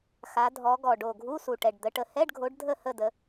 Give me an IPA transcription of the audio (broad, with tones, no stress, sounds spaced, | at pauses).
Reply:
x a˨˦ dʱ ɔ˨˦ ɡ ɔ˨˩ ɖ o˨˩ ɡʱ u˧˥˧ s u˨˩ ʈ ɛ˨˩ ɖ d̪ ə˨˦ ʈ ə˨˦ h ɛ˧˥˧ ɖ ɡʱ o˨˦ ɖ dʱ ə˥˧ h ə˥˧ d ə˨˦